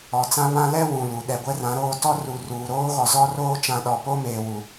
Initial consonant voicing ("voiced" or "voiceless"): voiceless